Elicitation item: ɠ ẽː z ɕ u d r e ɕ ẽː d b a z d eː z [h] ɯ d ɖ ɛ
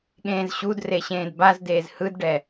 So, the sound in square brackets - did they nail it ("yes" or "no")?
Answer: yes